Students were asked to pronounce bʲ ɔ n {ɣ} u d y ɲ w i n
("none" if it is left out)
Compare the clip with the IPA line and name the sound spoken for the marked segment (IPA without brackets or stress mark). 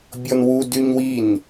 w